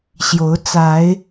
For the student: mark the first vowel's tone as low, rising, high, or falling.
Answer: rising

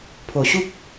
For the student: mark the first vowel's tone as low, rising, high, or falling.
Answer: low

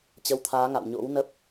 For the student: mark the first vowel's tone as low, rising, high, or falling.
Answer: rising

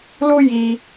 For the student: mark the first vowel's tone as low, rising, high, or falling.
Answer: high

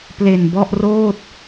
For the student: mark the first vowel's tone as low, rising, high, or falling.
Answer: low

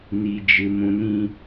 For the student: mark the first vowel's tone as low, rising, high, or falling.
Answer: low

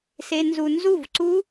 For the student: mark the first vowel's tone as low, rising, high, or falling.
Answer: low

